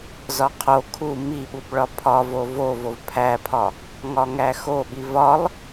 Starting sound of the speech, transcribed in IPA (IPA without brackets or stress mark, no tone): z